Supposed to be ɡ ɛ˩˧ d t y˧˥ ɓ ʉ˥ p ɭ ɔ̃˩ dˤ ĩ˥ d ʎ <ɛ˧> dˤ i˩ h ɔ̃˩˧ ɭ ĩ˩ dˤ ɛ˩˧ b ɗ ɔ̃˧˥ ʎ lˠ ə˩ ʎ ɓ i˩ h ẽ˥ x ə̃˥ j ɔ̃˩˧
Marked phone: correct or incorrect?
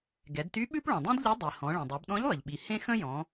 incorrect: ɛ˧˥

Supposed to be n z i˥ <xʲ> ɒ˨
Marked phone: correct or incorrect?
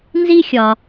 correct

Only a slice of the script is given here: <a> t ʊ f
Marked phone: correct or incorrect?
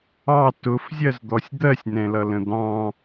incorrect: ɑ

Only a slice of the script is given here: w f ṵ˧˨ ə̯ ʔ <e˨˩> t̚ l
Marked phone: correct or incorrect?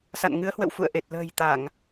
correct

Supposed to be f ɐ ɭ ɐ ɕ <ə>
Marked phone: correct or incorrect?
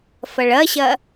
incorrect: ɐ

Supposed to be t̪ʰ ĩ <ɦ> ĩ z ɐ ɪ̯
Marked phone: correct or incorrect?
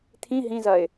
correct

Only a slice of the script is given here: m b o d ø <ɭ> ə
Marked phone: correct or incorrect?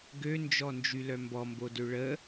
correct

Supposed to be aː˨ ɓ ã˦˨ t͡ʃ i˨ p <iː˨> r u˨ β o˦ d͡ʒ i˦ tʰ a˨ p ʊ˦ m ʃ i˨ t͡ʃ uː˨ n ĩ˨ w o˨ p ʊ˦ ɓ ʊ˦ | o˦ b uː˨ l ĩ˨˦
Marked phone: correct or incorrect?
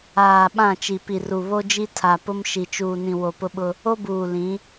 incorrect: i˨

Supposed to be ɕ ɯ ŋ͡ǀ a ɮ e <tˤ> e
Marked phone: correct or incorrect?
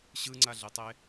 correct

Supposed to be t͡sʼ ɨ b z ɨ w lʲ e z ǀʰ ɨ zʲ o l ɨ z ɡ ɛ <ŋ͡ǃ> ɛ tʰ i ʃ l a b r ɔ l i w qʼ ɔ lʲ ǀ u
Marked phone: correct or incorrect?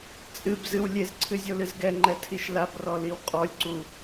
correct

